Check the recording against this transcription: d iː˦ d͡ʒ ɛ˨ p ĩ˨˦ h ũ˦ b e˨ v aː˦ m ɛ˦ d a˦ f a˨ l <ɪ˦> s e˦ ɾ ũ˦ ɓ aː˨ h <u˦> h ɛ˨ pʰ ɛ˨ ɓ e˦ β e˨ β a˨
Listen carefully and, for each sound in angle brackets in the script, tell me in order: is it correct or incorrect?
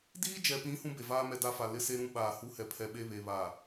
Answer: correct, correct

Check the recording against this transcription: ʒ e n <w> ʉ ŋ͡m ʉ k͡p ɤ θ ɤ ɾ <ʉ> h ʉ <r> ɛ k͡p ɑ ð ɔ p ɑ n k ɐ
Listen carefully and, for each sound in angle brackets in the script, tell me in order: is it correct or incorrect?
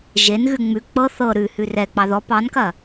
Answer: incorrect: ɣ, correct, correct

